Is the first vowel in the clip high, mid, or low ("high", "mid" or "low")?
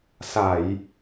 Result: low